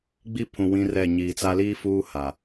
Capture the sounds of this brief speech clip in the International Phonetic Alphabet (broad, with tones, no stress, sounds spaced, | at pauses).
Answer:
ɡ͡b i˦ pʰ ũ˨ w ĩ˦ r ɛ˦˨ ɲ iː˨ t͡s a˦ l iː˦ f uː˦ h a˨